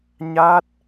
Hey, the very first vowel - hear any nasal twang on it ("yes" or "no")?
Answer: no